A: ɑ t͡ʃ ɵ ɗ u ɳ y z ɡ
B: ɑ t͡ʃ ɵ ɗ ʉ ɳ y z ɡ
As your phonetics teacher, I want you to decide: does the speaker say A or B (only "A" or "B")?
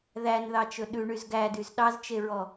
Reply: B